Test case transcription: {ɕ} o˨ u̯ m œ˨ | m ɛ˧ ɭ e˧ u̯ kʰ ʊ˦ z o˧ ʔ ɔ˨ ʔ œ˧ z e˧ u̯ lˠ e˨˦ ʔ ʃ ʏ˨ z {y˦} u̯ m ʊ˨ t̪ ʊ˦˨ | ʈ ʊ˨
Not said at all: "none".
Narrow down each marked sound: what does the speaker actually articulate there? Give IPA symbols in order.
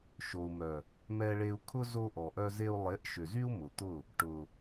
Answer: ʃ, y˦

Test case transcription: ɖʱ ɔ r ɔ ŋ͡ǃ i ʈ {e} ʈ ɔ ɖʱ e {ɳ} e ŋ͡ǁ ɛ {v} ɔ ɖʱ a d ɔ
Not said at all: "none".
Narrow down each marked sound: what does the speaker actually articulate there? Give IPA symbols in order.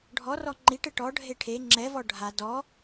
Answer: ɘ, ʈʰ, v

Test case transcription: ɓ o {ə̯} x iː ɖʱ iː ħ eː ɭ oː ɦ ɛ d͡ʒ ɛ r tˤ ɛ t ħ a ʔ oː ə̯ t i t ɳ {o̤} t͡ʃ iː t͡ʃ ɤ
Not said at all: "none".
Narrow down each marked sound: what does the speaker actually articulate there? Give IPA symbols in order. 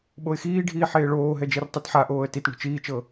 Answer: ɪ̯, o̤

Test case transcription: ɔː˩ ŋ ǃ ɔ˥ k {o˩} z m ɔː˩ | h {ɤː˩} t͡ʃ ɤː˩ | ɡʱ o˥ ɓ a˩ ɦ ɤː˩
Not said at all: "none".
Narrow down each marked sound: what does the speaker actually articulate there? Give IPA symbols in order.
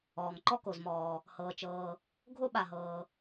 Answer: o˩, ɤː˩

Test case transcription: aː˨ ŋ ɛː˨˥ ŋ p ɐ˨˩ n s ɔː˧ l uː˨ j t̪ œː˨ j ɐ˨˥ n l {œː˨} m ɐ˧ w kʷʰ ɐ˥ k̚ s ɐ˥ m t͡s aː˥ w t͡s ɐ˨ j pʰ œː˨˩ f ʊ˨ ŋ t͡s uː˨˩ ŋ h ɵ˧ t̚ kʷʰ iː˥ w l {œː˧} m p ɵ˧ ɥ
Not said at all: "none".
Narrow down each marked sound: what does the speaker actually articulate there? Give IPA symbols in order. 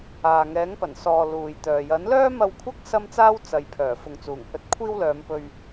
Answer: œː˥, œː˨˧

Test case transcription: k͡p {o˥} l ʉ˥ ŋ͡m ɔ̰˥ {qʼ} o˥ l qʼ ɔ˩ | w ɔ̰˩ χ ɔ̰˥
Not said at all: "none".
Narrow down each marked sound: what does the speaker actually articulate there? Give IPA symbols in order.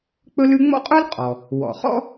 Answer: ɵ˥, qʼ

